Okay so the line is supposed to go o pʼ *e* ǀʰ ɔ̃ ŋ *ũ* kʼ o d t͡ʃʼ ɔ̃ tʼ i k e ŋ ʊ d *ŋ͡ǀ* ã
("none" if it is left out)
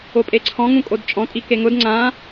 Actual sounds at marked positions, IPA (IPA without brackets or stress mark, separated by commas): e, ũ, ŋ͡ǀ